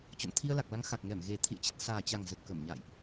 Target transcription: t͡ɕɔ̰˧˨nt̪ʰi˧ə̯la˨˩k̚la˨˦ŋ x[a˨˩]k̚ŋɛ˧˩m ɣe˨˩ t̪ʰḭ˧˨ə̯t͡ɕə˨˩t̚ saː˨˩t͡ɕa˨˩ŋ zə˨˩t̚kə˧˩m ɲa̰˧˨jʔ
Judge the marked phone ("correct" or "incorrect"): correct